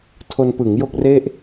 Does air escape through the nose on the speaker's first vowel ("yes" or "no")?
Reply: no